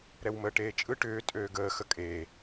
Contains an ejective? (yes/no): yes